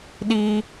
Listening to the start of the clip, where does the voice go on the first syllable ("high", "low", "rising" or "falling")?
high